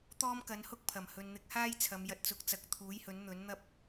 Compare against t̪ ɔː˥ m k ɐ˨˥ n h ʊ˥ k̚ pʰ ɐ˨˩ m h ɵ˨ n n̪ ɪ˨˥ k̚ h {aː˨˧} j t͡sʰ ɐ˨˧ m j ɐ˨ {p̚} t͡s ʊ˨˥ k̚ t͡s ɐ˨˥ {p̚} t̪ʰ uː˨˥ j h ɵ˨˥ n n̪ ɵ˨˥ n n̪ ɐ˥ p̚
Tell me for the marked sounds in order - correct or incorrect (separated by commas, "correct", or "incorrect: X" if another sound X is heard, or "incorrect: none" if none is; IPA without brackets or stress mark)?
incorrect: aː˥, incorrect: t̚, incorrect: k̚